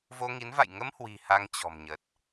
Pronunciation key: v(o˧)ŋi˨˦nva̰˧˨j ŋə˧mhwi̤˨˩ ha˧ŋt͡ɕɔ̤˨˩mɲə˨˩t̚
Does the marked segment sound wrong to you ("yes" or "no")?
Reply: no